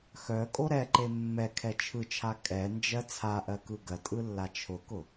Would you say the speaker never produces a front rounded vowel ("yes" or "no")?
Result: no